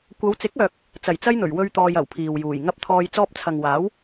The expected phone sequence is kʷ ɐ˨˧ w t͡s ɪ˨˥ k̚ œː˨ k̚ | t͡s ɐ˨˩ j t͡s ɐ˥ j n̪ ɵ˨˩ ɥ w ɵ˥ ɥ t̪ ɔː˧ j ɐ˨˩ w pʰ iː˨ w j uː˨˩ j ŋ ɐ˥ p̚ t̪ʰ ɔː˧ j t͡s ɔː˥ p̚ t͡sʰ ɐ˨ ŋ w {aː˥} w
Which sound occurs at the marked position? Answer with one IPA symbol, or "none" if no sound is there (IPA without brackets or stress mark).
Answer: aː˨˥